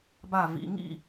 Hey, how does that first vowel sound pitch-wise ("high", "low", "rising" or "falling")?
falling